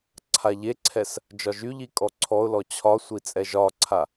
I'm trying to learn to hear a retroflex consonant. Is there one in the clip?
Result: no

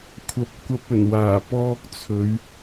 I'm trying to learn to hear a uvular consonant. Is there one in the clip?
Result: no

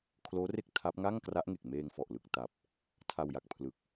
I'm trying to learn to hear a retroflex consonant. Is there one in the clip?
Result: no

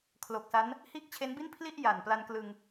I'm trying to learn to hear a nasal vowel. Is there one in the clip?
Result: no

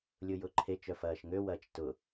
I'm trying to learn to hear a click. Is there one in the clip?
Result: yes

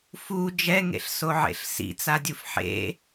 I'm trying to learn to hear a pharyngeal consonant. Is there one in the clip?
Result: yes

